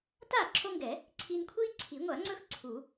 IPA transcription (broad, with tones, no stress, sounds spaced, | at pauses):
t aː˥˩ ǁʰ o˦ ŋ ɡ ɛ˨˩˦ | ǀʰ i˦ n kʷʰ iː˦ ǀʰ i˨˩˦ ŋʷ a˨˩˦ ŋ͡ǀ ɵ˦ x ǀʰ u˨˩˦